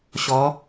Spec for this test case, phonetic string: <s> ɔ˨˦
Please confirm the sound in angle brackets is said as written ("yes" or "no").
no